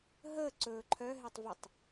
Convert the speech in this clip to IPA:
ɦ əː ǀ ɵː ǃʰ œ ɦ e tˤ v ə tˤ

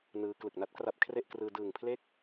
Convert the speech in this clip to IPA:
n ɯː˦˥ k l ɯ˨˩ k̚ n a˦˥ t̚ k r a˦˥ p̚ kʰ r e˥˩ ʔ k r ɯː˧ d ɯː˨˩ ŋ pʰ l e˥˩ k̚

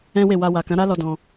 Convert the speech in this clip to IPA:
ɛ̃˦ w e˦˨ w a˧ w a˨ k ã˨˦ ɾ a˦ l ɔ˧ d ɔ̃˧

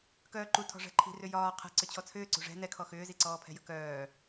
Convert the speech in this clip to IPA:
k œː ǃ u tʰ ɔ̤ ʐ ɛ̤ ǃʰ i̤ r ʏ j ɒː qʰ ɛ̤ ǀ ʏ t͡ɕʰ ɔ t͡sʰ ʏː ǀ ṳ ʐ ɛ̤ n ɛ kʰ ɔ x ʏː z i ǀ ɔː pʰ ɛ̤ j ə̤ k œː

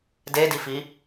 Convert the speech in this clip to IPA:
d e d i f i

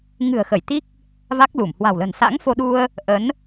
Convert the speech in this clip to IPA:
ŋ ɨ̤˨˩ ə̯ x ə˧˩ j t̪ i˦˥ k̚ | v a˦˥ k̚ l u˧˩ m h w a̤˨˩ w l ə̤˨˩ n s a̰˧˥ ŋ f o˧ ɗ u˧ ə̯ | ʔ ə˨˦ n

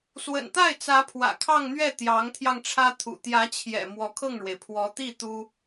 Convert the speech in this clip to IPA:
s w ə̰˨˩ n t̪ a˥˩ ɪ̯ t͡s ä˧˥ pʰ w ä̰˨˩ kʰ ɑ˥˧ ŋ n̪ ɥ ɛ˥˩ t̪ j ɑ˧˥ ŋ t̪ʰ j ɑ˧ ŋ ʈ͡ʂʰ ä˥ t̪ʰ ṵ˨˩ t̪ j ä˧˥ t͡ɕʰ j ɛ̰˨˩ m w ɔ˧˥ kʰ ɤ˥˩ ŋ ɻ w e˩ ɪ̯ pʰ w ɔ˧˥ t̪ i˥˩ t̪ u˥

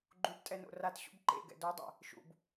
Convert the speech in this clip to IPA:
ɡ͡ǃ u b tʼ ɛ n o̰ r a t ɕ ṵ b ǃ ḛ ɡ ɛ̰ d o dˤ ɛ̰ | ʃ ṵ b

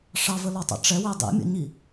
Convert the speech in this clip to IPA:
ʂ ɑ v ə l ɒ tˤ a̰ ʈ͡ʂ ɛ w ɛ dˤ ḭ mʲ ə̰ ɲ i

